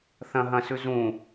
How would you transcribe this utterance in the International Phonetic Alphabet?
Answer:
θɐ̃ ɦɐ̃sʉ zũ

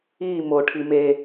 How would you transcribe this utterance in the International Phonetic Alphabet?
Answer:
i mo ʈʰime

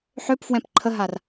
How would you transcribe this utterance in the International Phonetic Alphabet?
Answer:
ħøpfwɛ̃p ǃʰəɦar

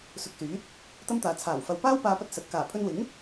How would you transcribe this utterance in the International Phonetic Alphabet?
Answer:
sʊ˨k̚syː˨˥t̚ | t̪ɐ˥mt̪aː˨ t͡sʰaː˨˩wfɐ˨w paː˥wpaː˧pɐ˧t̚ sɐ˨t̚ kaː˨˩ pʰɵ˧nwɪ˨˥ŋ

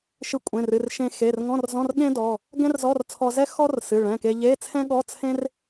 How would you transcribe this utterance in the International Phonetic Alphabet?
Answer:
ʃɨ˧kʷʼẽ˩˧˩rɨ˩˧˩r ʃẽ˧ xe˩˧˩r ŋɔ̃˧˥˧rzɔ̃˧˥˧r ɠẽ˥dɔ˩˧˩ | ɡɛ̃˥rzɔ˧˥˧r t͡sʰɔ˧zɛ˥ xɔ˥r sɨ˩˧˩ɭɛ̃˩˧˩ke˧ ʎe˧˥˧t͡sʰɛ̃˥ɠɔ˧˥˧ t͡sʰẽ˥r

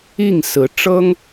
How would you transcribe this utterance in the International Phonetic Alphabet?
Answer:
i˥˩ŋsɹ̩˧˥ ʈ͡ʂɤ˥ŋ

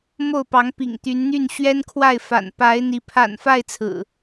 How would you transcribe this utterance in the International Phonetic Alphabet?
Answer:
mo˥˨ʊ̯pɑ˨˦ŋpḭ˨˩ŋ t̪y˨˦nn̪y˥˨nɕɥɛ˦nkʰwa˥˨ɪ̯ fa̰˨˩n pa˨˦ɪ̯n̪i˨˦ pʰa̰˨˩nfa˥˨ɪ̯ t͡sʰɹ̩˨˩

